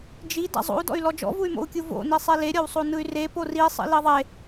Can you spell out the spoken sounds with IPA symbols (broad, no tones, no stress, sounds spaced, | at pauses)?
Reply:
d͡ʒ i d a̰ zˤ o̰ u̯ d ɔ̰ y̯ l ɔ d͡ʒ ɔ̰ v u y̯ m o̰ u̯ kʲ u v o̰ n i sˤ e l e ɾʲ ɔ w sˤ o n ɯ y̯ r e p o r i sˤ ḭ l i ðˤ e